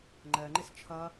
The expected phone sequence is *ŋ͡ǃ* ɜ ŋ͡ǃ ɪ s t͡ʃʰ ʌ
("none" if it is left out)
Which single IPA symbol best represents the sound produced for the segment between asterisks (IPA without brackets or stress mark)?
ŋ͡ǃ